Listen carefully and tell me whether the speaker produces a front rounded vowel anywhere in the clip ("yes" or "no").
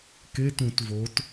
no